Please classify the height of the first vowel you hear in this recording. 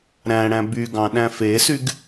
low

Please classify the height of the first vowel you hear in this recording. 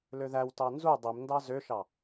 mid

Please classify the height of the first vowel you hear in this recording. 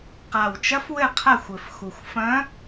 low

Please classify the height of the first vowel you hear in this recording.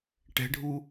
mid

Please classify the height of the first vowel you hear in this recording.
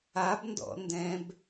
low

